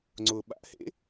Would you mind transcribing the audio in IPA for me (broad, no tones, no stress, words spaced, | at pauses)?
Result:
ŋ͡ǀʊːɓa̰ʔ hḛ